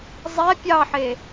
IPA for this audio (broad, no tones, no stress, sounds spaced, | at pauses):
zˤ ɛ pʲ ɑ ħ e